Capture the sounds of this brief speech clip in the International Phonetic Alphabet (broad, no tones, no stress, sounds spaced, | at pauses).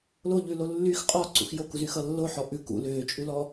l o ʎ ʉ l o lː y x qʼ ɔ ǀ ṵ x j o k u z y x ʌ lː o ħ ɔ ʔ ʉ k ṵ l ʏː t͡ʃʼ ʉ l ɔ